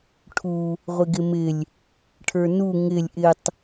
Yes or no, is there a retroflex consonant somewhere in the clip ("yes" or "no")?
yes